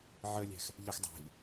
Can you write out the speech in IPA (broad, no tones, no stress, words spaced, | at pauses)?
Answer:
ʕəlʲæ̤x | ʎəx dˤæ̤ʎ